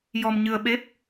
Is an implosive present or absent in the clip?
present